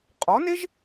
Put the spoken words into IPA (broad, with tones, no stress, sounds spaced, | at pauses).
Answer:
qʼ ɔ˩˥ n e˥ ʒ